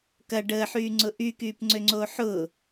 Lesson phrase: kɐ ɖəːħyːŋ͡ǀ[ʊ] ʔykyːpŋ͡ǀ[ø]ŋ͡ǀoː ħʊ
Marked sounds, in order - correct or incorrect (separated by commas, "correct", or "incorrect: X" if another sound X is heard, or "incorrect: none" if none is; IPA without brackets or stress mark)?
correct, correct